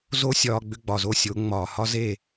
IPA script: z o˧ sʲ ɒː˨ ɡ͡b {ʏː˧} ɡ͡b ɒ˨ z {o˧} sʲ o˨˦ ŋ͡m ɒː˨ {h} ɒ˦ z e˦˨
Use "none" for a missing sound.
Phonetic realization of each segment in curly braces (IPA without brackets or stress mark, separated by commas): ʏ˧, o˧, h